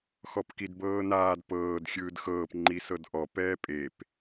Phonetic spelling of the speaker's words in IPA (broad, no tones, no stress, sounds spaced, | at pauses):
x ɔ p k i d b ɤː n aː d p ɤː d xʲ ɯː d x ɤː p ŋ͡ǃ i s ɤ d ʔ ɔ p ɛː pʼ e p